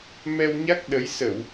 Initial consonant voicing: voiced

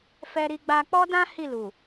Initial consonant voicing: voiceless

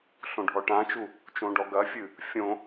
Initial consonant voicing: voiceless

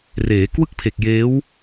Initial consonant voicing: voiced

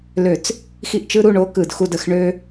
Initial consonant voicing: voiced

